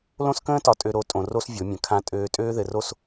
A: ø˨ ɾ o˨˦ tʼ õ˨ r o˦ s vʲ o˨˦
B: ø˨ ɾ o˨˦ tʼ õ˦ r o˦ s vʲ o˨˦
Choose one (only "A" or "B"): A